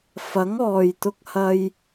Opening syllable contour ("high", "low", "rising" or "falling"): rising